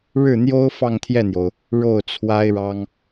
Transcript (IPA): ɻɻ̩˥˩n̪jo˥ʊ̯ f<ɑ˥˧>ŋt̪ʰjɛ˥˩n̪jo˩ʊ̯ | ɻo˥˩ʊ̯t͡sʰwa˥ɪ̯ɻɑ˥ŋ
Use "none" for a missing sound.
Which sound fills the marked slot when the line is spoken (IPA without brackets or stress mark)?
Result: ɑ˥˧